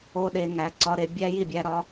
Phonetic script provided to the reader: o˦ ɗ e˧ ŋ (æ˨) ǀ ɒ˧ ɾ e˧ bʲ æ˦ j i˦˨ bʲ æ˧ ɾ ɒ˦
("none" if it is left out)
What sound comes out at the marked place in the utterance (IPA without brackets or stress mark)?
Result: æ˨